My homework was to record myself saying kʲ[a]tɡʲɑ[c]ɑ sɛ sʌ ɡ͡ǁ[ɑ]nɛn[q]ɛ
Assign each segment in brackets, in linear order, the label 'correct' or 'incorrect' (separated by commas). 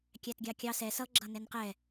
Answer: incorrect, incorrect, incorrect, correct